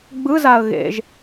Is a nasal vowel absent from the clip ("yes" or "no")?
yes